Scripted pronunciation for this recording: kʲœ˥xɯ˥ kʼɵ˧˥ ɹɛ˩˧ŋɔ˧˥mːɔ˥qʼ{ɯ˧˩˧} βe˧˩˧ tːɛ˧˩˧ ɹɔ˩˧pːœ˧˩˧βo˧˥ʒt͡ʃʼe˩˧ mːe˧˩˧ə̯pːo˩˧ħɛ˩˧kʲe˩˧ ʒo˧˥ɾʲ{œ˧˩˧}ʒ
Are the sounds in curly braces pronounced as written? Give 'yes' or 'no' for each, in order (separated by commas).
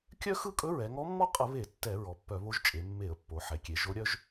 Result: no, no